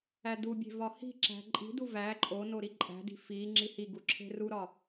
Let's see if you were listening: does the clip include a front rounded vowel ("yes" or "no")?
no